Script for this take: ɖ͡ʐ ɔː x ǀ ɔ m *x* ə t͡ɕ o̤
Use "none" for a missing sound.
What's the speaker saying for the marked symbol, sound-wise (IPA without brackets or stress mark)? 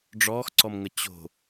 ŋ